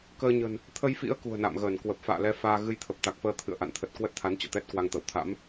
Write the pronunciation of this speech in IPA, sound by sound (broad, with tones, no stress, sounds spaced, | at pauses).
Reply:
k əː˧ ɲ ə̤˨˩ n | t̪ʰ ə˧ j f ḭ˧˥ ə̯ k ṳ˨˩ ə̯ n a̰˧˨ m ɣ əː˧˩ n k w ə˨˩ p̚ f a̰ː˧˨ l ɛ˨˦ f aː˧ ɣ ɨ˧ j t̪ʰ ə˨˩ p̚ t̪ a˨˩ k̚ f əː˧ t̪ʰ ɨ̰˧˨ ə̯ ʔ a̰˧˨ n t̪ʰ ə˨˩ t̚ k w ə˦˥ t̚ t̪ʰ a˨˦ n t͡ɕ ɔ̰˧˨ t̪ ɛ˦˥ t̚ k w a˧ ŋ t̪ ə̰˧˨ w t̪ʰ a̰˧˥ m